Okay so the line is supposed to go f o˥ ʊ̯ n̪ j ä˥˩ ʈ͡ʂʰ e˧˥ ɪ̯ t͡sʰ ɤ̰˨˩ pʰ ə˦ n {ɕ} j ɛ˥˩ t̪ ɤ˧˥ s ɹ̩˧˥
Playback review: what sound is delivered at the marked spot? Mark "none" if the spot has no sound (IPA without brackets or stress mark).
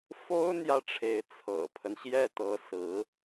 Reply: ɕ